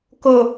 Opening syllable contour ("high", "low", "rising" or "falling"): low